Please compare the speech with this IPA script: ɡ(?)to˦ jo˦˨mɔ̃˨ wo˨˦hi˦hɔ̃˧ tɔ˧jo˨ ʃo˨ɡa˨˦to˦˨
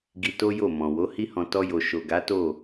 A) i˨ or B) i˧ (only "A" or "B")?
B